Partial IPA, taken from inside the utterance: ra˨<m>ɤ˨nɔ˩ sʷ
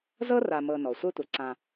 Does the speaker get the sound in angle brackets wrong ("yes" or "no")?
no